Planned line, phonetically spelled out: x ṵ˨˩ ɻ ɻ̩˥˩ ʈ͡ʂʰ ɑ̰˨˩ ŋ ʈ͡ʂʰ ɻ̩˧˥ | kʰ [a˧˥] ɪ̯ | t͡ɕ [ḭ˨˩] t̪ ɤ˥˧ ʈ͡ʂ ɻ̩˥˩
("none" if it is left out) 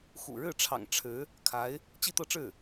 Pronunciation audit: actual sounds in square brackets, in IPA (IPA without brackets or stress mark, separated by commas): a˧˥, i˥˧